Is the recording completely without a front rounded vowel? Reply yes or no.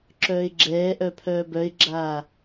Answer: no